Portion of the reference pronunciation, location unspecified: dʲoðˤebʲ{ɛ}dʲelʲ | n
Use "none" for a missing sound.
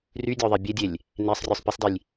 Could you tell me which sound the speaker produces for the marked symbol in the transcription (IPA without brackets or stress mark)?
e